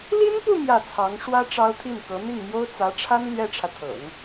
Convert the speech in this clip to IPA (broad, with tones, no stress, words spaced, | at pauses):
li˥npu˥˧ mjä˥˩ t͡sʰɑ˧˥ŋ ʂwä˥ ʈ͡ʂɑ˥ʊ̯t̪ʰi˥˩nkɤ˧˥ n̪i˥˩ŋmjo˥ʊ̯ t͡sä˧˥ʈ͡ʂʰa˥n lɥɛ˥ʈ͡ʂʰä˨t̪ʰɤ̰˨˩˦ŋ